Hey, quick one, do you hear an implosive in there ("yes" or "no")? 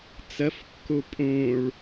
no